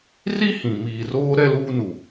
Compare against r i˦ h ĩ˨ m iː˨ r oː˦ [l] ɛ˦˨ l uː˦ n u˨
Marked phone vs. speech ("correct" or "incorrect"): incorrect